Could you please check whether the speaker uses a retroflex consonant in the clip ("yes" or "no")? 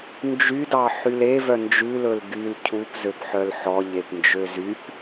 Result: no